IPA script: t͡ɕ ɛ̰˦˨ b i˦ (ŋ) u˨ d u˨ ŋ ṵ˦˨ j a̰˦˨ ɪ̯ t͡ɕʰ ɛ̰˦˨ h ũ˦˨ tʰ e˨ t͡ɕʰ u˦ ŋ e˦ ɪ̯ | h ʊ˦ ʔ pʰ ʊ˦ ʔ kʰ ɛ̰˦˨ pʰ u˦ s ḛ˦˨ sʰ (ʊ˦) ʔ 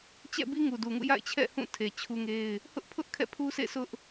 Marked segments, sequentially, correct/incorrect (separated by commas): correct, correct